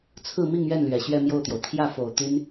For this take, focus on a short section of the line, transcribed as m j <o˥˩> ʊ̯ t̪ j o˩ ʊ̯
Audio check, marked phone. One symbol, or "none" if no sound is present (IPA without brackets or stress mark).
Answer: o˥˩